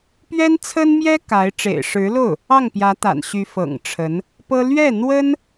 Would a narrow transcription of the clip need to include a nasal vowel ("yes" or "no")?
no